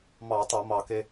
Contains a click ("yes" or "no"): no